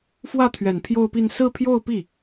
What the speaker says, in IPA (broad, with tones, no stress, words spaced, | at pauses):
fwä˥˩t̪ʰɥɛ˨˩n pʰjo˥˧ʊ̯pi˥˧n sɹ̩˥˧pʰjo˥˧ʊ̯pi˥˩